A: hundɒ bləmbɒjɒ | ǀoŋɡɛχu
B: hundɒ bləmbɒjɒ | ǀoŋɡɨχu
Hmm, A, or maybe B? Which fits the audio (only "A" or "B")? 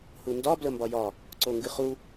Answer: B